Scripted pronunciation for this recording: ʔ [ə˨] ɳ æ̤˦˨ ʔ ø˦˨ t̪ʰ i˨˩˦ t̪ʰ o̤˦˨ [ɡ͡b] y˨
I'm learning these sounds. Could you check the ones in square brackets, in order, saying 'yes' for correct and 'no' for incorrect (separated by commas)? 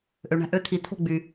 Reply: no, yes